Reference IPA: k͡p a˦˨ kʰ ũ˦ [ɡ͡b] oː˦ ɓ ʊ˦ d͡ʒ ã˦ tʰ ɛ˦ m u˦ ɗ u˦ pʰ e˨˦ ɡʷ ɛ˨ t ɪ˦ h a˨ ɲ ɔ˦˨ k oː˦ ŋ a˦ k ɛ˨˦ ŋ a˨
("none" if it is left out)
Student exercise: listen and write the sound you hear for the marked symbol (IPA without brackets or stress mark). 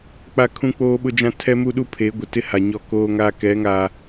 k͡p